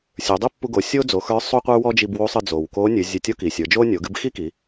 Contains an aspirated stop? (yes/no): no